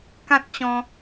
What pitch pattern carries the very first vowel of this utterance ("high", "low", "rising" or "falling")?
high